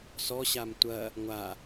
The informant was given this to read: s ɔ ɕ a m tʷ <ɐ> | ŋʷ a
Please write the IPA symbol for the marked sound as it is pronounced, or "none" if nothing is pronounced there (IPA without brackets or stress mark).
ɐ